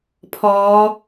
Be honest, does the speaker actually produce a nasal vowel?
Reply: no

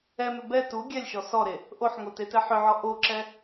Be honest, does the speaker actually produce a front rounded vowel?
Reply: yes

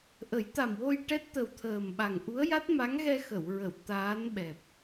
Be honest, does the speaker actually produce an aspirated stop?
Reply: yes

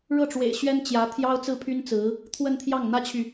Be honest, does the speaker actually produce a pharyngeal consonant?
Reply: no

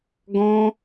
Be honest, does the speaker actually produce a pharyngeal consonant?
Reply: no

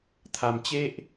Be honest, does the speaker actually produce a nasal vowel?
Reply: no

